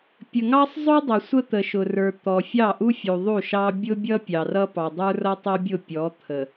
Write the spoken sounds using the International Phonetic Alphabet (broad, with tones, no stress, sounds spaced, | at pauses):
pʲ ə˨ ŋ ɑ˦ sˤ zˤ ʊ˦ dˤ ʌ˨ sʷ ə˦ t̪ ə˨ ʃ ʊ˨ r ə˞˨ t̪ ɔ˨ fʲ ɑ˦˨ ʔ u˦ fʲ u˨ ðˤ u˦˨ ʃ ɑ˦ bʲ ʊ˦ bʲ ʌ˦ pʲ ɑ˨ r ʌ˦ p ɑ˨ dˤ ə˞˦ r ʌ˦ tˤ ʌ˦ bʲ ʊ˦˨ pʲ ɔ˨˦ t̪ʰ ə˨